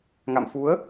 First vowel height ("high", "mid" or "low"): low